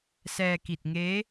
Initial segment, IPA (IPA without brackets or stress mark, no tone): s